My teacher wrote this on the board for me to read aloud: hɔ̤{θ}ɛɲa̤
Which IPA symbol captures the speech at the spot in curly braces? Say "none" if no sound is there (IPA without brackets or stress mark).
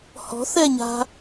θ